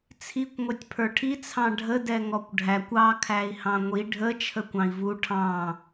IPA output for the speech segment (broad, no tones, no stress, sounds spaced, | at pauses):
t͡sʰ i kʷ ŋʷ ɛ tʲ pʰ ə˞ ʈʰ i t͡sʰ ɑ̃ ɖʱ ə d ɛ ŋ ɔ kʷ ɖʱ æ kʷ ɑ kʰ æ i̯ h ɑ̃ ŋʷ i ɖʱ ə t͡ʃʰ ə kʷ ɑ̃ i̯ v u ʈʰ ɑ̃